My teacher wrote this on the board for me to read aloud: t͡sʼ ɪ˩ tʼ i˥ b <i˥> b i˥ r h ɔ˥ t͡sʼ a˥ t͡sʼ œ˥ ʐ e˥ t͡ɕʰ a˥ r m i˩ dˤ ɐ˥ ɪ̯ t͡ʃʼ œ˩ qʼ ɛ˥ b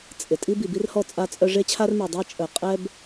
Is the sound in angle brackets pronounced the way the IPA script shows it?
no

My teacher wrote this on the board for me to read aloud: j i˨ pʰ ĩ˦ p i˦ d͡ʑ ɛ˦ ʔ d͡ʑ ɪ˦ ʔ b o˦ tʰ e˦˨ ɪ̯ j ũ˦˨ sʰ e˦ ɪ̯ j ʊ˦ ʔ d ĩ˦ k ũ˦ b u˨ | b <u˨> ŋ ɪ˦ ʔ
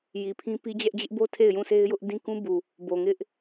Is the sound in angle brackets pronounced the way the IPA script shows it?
no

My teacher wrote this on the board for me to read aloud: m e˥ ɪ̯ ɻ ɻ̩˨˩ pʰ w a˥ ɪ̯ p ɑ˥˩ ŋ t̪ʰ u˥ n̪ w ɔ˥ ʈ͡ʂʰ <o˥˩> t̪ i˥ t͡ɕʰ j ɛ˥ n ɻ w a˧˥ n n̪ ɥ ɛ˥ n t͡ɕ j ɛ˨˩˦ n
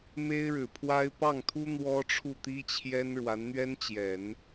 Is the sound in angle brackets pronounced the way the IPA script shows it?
no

